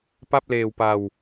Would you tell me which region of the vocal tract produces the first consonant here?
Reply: lips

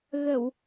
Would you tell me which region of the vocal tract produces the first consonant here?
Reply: velum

